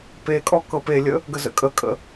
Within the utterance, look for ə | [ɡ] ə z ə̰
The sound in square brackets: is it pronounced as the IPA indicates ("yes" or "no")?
yes